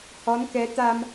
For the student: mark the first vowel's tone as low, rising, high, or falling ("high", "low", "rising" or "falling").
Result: rising